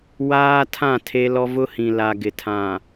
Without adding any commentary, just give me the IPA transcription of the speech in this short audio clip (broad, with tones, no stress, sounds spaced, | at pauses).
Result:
w aː˦ tʰ ã˦˨ tʰ e˦ l ɔ˦ v ʊ˦ h ĩ˨ l a˨ ɡ ɪ˨ tʰ ã˨